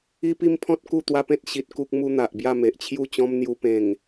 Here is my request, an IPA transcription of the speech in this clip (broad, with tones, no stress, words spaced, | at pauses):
i˦pi˦m pʰɔ̃˦t̚ ku˥˧t̪wa˦pẽ˦t̚ ɕi˨t̚ ku˦k̚mu˦n̪a˨ʔ bja˥˧me˨ʔt͡ɕʰju˥˧t͡ɕɔ̃˦m n̪ju˧pẽ˨˩ŋ